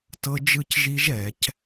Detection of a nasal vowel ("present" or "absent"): absent